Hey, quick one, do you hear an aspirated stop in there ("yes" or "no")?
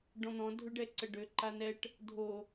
no